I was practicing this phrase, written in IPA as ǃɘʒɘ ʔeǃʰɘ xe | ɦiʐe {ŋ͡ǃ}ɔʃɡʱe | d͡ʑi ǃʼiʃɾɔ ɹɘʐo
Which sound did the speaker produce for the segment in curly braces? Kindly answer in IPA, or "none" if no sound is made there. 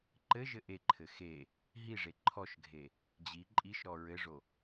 ǃʰ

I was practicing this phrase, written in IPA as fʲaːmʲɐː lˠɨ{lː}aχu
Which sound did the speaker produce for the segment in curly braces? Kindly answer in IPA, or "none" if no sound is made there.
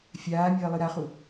ɾ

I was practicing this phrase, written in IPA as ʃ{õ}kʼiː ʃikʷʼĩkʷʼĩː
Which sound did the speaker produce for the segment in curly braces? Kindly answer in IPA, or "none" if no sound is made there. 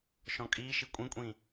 ɔ̃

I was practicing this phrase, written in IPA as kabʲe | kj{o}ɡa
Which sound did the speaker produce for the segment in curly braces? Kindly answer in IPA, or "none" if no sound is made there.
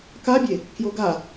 o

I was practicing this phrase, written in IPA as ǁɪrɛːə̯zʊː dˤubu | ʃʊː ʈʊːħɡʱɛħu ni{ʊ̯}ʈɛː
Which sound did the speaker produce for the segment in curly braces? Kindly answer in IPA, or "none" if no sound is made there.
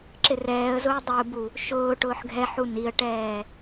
ə̯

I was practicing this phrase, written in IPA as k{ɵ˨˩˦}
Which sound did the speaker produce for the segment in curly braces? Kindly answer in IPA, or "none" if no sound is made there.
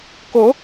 o˨˩˦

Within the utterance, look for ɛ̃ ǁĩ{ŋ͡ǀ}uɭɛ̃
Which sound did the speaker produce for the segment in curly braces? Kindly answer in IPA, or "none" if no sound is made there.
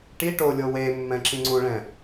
ŋ͡ǀ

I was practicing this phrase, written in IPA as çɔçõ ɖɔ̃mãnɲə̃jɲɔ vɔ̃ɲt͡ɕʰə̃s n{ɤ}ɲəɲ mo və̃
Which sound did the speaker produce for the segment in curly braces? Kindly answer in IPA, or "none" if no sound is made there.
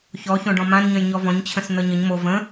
ɤ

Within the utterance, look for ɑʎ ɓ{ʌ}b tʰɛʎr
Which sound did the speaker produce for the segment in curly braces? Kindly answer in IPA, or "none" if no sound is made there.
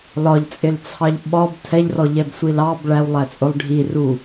ɒ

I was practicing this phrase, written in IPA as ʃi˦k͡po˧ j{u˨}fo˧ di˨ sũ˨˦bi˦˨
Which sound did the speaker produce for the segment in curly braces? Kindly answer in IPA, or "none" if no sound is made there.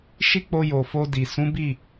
o˨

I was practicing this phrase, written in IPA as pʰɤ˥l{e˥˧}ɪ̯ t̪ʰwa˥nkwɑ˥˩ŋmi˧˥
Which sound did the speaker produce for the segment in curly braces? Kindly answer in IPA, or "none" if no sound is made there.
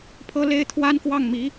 e˥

